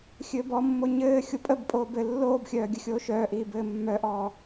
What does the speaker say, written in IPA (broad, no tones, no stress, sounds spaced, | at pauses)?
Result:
xʲ ɘː b ɔ mː o ɲ ɘː xʲ o pʼ ə b pʼ oː b ɘ lː oː b xʲ œː ɡʲ ə xʲ oː ʃ œː ʔ iː b ɘː mː œ ʔ ɔː